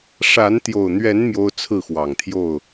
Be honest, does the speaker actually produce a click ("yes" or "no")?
no